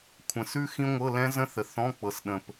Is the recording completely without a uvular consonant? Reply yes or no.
yes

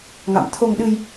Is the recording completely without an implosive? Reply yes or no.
no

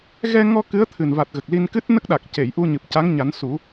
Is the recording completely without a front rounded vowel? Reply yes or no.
yes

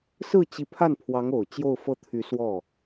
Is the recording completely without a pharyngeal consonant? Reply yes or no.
yes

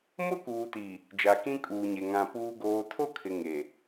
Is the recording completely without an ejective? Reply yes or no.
no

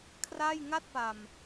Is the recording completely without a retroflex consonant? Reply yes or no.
yes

